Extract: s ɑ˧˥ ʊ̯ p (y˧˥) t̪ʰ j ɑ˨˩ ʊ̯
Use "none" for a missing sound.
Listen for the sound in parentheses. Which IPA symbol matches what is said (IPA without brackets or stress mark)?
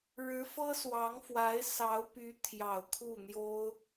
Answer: y˧˥